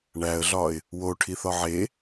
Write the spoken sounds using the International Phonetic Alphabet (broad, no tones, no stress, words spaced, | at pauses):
ɳæə̯ɮɒɪ̯ | woʈʰiθɒ ʕe